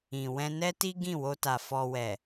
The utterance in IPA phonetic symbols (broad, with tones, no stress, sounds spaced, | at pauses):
ĩ˨ w ɛ̃˧ n ɛ˦ t i˦ ɡ ĩ˦˨ w o˧ t a˨ f ɔ˧ w ɛ˨